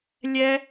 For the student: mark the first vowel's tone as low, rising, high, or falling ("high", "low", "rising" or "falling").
high